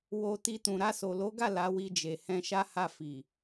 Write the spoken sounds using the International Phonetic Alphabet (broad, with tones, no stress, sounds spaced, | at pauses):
w o˧ t i˧ t ũ˨ ɾ a˧ s o˨ l o˨˦ ɡ a˦˨ l a˨˦ w i˧ d͡ʒ e˨ h ɛ̃˧ ʃ a˦ h a˦˨ f i˨